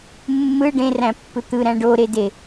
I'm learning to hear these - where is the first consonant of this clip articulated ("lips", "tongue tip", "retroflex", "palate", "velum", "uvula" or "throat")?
lips